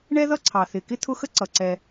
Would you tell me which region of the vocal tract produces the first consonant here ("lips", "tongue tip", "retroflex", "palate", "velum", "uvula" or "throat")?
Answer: retroflex